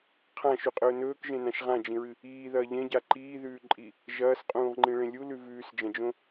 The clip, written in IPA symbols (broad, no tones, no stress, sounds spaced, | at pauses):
qʰ ã ʃ ʉ qʼ ɵː n ɵː k ʒ ẽ n ã ʃ ʁ ã d͡ʒ ĩ ɹ ɨ | iː ð ɐː ʎ ẽ ɟ a ǃ iː ð ʉː ǃʼ i | ʒ ɐː s qʼ ũː ʁ ŋ͡ǃ ĩ ɭ ẽ lʲ u l ʉ v ʉː s d͡ʒ ɐ̃ d͡ʒ õ